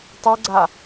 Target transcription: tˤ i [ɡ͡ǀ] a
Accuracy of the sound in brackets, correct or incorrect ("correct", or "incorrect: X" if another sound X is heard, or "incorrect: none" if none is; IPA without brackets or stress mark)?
correct